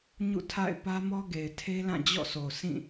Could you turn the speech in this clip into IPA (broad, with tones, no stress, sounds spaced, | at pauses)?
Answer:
ɲ ṵ˦˨ tʰ a̰˦˨ ɪ̯ p ä˦ m ɔ˦ ɡ e˨ ɪ̯ tʰ e˦ l ã˦˨ d͡ʑ ɔ̰˦˨ s o˨ s ĩ˦˨